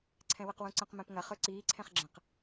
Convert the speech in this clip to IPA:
ǀʰɛ̃wəqwũǀə̃q mɛ̃pŋɐ χɵǀiː ǀʰɛ̃χɡ͡ǁə̃q

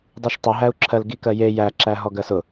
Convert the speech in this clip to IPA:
dˤiʃtˤʊɦæu̯ǁʰɜl ɡikɜje jæǁæ ɦɔɡɜsʊ

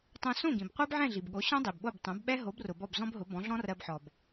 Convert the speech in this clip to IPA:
tˤõ˧sõ˥˩ɡĩ˩b qʷɜ˥bʕɛ̃˥˩ɮi˩bɠo˩˥ ɕɔ̃˥dˤi˩bɓo˥˩b tˤõ˩˥bɓɛ˥ ɦo˩˥brʊ˩ bɔ˥˩bzɔ̃˥bɦʊ˩˥ bɔ̃˩˥ɮɔ̃˥rɜ˧bħɔ˩b

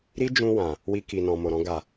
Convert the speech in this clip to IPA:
ɾi˦ d͡ʒũ˧ wã˨ | wi˧ki˨ nɔ̃˨mo˨ɾɔ̃˧ ɡa˨

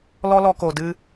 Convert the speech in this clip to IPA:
lɔ˦lɔ˧ko˨ dɨ˧

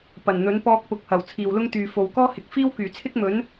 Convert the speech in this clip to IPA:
pɐ˨˩nn̪ɵ˨˥npɔː˧k̚ pʊ˨˥k̚hɐ˨˩w t͡sʰiː˨wlʊ˥ŋt̪yː˨ fo˨w kɔː˥hɪ˨˥k̚ fiː˥wkyː˨˩t͡sʰɪ˥k̚ mɵ˨˥n

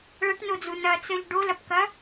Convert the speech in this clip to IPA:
ɭɐʈnod͡zu nɐt͡sœʎ ɖolɐpkɐ

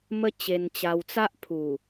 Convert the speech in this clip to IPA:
mə˦t͡ɕe˧nt͡ɕa˧wt͡sa˦ʔ pʰu˨˩

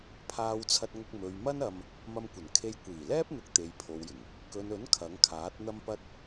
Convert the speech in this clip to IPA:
pʰaː˧wt͡sʰɐ˧t̚ŋʊ˧k̚ mɵ˨ɥmɐ˥nɐ˧m | mɐ˧mkʷɐ˨˩nkʰe˧j kʷiː˨˩lɛː˥p̚n̪ʊ˨˥k̚ t̪e˨jpʰo˨wjɪ˨˩ŋ | kɵ˨nɵ˨˥n kʰɐ˨˥ŋkʰaː˨˥t̚n̪ɐ˥mpɐ˥t̚

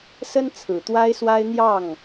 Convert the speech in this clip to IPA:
sə˦nt͡sʰɹ̩˨˩t̪wa˦ɪ̯swa˦ɪ̯ n̪jɑ˥˨ŋ

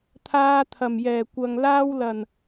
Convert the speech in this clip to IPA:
t̪ʰaː˧t̪ʰɐ˨˩mjɛː˨˩kʷɐ˨ŋ laː˧wlɐ˨˩n

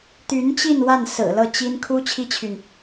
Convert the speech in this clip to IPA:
t̪y˧˥nt͡ɕi˥˧n wa˥˩nsɹ̩˨˩ lɤ˥˩t͡ɕi˥n kʰu˥ t͡ɕʰi˥t͡ɕʰy˨n

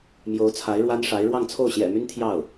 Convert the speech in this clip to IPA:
mjo˧˥ʊ̯t͡sʰa˧˥ɪ̯ɻwa˥nʂa˧˥ɪ̯ ɻwɑ˥˧ŋt͡sʰo˥˩ʊ̯ɕjɛ̰˨˩my˥n t̪ʰjɑ˥˩ʊ̯

